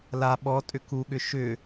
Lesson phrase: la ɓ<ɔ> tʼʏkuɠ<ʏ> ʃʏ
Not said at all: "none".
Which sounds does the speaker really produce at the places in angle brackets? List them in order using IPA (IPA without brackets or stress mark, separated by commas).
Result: ɔ, ʏ